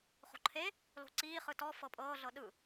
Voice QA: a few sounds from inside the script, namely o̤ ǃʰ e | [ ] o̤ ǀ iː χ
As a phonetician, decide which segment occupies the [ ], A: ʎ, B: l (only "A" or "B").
B